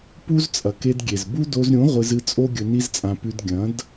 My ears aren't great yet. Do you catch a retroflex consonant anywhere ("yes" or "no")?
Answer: no